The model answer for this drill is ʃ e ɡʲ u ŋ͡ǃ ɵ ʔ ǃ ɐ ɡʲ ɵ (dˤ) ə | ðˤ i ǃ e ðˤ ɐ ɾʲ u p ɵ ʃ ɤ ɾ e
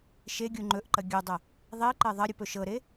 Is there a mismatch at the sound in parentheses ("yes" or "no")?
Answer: no